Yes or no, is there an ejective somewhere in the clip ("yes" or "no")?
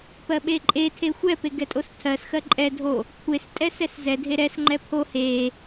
yes